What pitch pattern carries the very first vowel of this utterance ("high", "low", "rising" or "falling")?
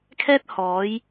high